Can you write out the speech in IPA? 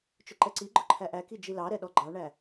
t͡ʃ ʊ ǃ ɛ ǀ i ɡ͡ǃ ʊ ǃʰ æ ʔ æ k i d͡ʒ i l ɑ ɾ ɛ ɗ ɔ ɡ͡ǃ ɑ ɳ æ

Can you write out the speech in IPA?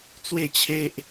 t͡s w e˥˧ t͡ɕʰ e˦ ʔ

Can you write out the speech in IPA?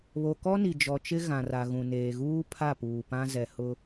β o˨ k ɔ˦ n i˨ d͡ʒ ɔ˨ t͡ʃ ɪ˦ ɣ ã˨ r a˨ ɣ ũ˨ n eː˨ ɣ uː˦ pʰ a˦˨ p uː˨ p ã˦ z ɛ˨ h ʊ˦

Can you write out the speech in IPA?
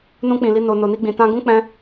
n ũ˧ k͡p ĩ˨ l i˧ n o˧ n o˨ n i˧ ɡ͡b ĩ˨ t ã˧ ɡ ũ˦ k͡p ɛ̃˦

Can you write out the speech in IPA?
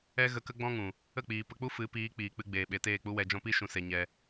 ɛ˦ ɣ ə˧ k ə˦ ɡ͡b ɔ̃˦ ŋ ũ˨ | ə˦˨ k͡p iː˨ p ə˧ k͡p u˦ f ɨ˨˦ p iː˨˦ k͡p iː˨ k͡p ɨ˧ ɡ͡b eː˨ ɓ e˨ t eː˦˨ k͡p u˦ w ɛ˧ d͡ʒ ɔ̃˦ p i˦ ʃ ũ˧ s e˧ ɲ ɛ˧

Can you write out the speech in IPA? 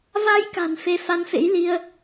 v a˧ j k a̤˨˩ n f e˧ f a˨˦ n f ḛ˧˥ j l i˧ ə̯

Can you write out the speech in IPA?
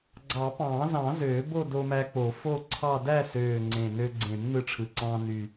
ɡ͡ǀ ɑ˨˩˦ p ɑ̃ː˨˩˦ z ɑ̃˨˩˦ z øː˨˩˦ b o˥˧ d o˧ m æ˧ k͡p o˨˩˦ f o˥˧ ǀʰ ɑ˥˧ d æ˥˧ s øː˨˩ ŋ͡ǀ ẽ˨˩ n ø˧ ɡ͡ǀ ẽ˨˩˦ m n ɯ˧ ʈ͡ʂʰ ɯ˨˩ ǀ ɑ̃ː˧ n y˨˩

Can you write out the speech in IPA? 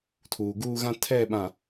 tʰ uː˨ ɡ uː˦ ɣ ã˦ tʰ ɛ˦˨ ɓ ã˨

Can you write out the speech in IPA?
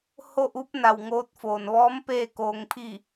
h o˥˨ ʔ u˧˥ p̚ n a˧˩ w ŋ oː˧˥ t̚ f oː˩ n ʋ ɔː˧˥ m p eː˥˨ k oː˧ ŋ pʰ i˥˨

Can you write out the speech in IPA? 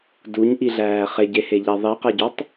d u ɲ ʔ i ɮ æː χ e ɟ e h e ʎ æ ðˤ i q æ ɟ ɒ tˤ

